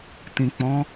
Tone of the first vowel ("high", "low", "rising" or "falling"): low